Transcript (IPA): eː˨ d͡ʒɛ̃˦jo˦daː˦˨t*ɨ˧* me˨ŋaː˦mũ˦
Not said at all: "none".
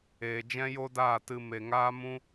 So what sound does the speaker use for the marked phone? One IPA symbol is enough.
ɨ˧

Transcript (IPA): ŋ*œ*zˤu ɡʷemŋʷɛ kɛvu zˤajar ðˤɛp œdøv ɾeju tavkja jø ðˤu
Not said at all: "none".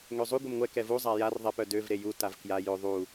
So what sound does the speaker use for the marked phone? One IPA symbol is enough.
ø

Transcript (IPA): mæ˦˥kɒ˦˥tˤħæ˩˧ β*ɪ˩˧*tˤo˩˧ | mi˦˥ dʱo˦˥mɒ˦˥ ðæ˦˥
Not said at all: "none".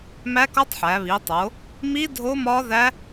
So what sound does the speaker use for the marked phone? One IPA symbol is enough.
i˩˧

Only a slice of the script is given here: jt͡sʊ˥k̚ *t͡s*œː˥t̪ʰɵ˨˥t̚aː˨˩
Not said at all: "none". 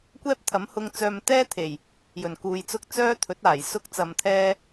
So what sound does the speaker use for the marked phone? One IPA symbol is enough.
t͡s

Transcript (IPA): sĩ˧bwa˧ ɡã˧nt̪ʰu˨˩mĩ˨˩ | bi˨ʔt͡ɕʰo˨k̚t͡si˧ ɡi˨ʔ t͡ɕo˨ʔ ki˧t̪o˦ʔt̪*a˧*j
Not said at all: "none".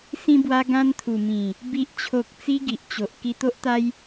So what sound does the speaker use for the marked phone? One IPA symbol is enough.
a˦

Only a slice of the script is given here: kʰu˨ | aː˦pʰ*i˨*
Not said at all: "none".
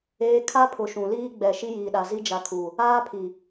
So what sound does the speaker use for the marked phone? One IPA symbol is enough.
i˨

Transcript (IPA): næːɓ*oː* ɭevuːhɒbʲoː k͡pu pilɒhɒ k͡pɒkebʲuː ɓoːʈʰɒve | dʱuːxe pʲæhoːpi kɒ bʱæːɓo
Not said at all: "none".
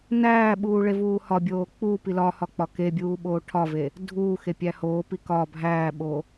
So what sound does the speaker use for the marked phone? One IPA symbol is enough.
uː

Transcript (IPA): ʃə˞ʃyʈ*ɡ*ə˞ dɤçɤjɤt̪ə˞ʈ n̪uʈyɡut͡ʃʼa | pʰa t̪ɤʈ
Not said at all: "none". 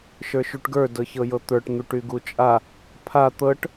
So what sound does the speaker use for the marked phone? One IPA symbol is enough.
ɡ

